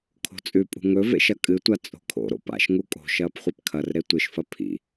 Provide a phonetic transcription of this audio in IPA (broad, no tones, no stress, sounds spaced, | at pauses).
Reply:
kʰ o̤ t͡sʼ ʉ pʼ ṳ ŋ ɵ v ḛ ʃ ɐ kʼ ɨ tʷ a t͡sʼ o̤ kʰ o̰ ɾ o̰ p a̰ ʃ ŋ u kʼ o̤ ʃ ɐː p χʷ e p kʰ ɐ r ɾ e tʷ ɨ ʃ f ɐ pʰ ḭ